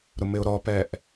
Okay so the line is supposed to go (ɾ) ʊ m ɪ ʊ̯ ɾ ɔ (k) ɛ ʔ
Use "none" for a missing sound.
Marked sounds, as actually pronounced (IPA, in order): ɾ, p

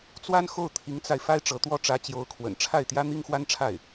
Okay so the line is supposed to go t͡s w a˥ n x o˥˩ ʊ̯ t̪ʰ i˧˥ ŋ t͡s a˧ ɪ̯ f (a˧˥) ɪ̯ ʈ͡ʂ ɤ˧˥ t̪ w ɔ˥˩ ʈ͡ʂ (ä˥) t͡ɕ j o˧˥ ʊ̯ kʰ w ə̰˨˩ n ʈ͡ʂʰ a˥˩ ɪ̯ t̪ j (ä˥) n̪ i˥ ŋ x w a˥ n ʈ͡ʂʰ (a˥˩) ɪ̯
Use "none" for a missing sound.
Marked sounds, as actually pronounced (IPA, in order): a˥, ä˧˥, ä˥, a˥˩

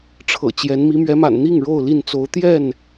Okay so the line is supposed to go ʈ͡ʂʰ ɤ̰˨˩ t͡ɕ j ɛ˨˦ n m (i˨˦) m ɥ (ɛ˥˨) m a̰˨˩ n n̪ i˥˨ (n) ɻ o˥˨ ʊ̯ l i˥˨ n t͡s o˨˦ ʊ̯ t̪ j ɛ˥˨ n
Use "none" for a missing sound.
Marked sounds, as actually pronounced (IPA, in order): i˨˦, ɛ˨˦, ŋ

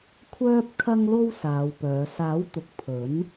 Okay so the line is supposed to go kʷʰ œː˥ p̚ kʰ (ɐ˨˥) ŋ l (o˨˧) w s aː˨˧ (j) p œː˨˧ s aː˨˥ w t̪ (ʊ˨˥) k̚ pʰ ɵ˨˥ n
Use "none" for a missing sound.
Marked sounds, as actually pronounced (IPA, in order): ɐ˥, o˥, w, ʊ˨˥

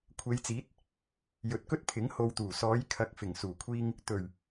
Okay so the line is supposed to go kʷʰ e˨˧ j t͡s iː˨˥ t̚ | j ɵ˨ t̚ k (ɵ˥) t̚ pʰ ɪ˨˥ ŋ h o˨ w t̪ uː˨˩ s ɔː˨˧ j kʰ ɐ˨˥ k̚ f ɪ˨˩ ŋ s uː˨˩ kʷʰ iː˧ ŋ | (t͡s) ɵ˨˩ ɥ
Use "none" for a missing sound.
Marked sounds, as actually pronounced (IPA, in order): ɵ˥, t̪

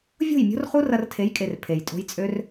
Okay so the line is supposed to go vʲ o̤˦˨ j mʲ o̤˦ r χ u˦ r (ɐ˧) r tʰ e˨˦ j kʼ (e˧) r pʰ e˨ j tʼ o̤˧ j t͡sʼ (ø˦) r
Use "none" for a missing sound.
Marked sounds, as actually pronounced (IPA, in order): ɐ˧, e˨, ø˦

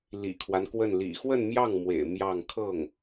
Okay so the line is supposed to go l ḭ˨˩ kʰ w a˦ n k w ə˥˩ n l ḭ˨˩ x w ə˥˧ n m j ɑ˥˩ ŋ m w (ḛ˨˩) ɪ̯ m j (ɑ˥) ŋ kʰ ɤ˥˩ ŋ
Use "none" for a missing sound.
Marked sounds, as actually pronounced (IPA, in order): ḛ˨˩, ɑ˥˧

